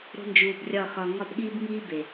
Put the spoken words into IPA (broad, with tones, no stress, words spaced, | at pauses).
ɾo̤˦nd͡ʒuː˧brʲɒ˦˨xɒ˧ ŋɒ˦˨bɠiː˦bŋiː˦ be˨